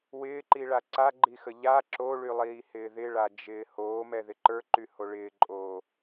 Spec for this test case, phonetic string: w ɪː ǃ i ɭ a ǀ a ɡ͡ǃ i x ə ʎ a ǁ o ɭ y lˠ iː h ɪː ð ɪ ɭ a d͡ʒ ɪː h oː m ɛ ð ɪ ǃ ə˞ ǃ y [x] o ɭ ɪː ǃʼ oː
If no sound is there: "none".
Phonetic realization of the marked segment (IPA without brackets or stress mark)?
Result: h